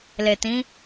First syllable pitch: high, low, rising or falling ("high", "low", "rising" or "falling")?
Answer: low